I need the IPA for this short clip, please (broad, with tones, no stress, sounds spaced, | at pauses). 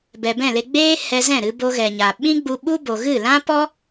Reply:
b ɛ˨ b ɛ̃˦˨ l e˧ ɡ͡b eː˦ h ɛ˧ z ɛ̃˦˨ ɾ ɨ˧ b o˧ ɣ ɛ˨ ɲ a˨ ɓ ĩ˦ ɡ͡b u˧ ɓ u˦ b o˨ ɣ ɨ˦˨ l ã˦ p ɔ˦